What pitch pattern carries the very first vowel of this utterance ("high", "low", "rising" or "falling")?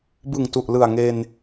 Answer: low